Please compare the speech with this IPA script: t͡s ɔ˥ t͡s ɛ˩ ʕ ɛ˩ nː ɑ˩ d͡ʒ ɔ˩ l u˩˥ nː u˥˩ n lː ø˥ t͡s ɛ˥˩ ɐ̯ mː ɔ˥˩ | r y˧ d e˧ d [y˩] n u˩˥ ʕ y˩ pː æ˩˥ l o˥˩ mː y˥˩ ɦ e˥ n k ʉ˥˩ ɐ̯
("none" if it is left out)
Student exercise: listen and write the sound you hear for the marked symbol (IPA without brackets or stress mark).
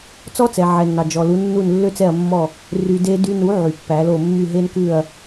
y˧